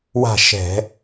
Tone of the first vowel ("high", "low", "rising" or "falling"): falling